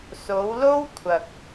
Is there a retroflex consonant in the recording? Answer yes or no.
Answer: no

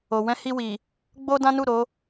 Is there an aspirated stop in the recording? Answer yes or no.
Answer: no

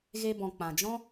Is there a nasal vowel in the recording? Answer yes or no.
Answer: yes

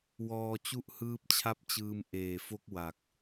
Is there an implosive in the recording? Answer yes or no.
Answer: no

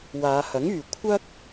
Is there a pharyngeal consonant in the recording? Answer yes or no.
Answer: no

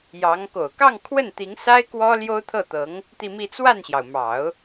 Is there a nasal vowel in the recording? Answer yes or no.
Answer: no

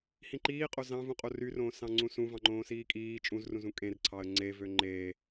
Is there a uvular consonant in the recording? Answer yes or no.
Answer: yes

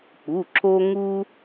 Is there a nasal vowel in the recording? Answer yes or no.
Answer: no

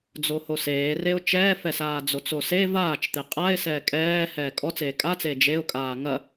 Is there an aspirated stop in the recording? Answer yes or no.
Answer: no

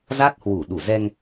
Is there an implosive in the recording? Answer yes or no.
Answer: yes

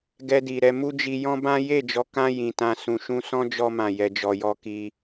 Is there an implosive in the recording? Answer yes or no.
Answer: no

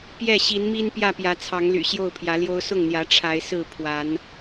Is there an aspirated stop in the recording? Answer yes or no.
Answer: yes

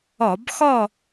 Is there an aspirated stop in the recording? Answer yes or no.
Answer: no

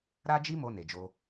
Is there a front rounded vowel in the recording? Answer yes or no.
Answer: no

